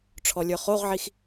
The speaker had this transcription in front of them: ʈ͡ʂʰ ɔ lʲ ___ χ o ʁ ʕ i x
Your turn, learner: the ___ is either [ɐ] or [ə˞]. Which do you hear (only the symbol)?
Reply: ə˞